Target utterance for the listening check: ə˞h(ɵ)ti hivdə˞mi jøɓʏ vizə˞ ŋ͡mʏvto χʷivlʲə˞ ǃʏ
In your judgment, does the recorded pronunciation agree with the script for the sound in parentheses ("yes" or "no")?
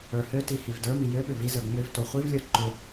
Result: no